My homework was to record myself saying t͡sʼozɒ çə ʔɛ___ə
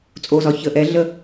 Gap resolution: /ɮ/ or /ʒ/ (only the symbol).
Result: ɮ